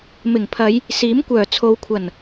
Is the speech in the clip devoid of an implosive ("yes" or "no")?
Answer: yes